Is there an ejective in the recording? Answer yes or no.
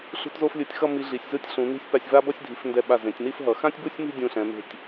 no